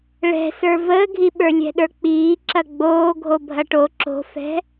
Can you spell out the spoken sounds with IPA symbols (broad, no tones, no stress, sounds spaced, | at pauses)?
ɭ ɛ̤ s ə˞ v əː ɡʱ i ɓ ə˞ lʲ ɛ̤ ɗ ə˞ k͡p iː ǁ ɐ ɡ͡b oː ɡʱ o bʱ ɐ ʈ o ǁ o̤ f ɛ̤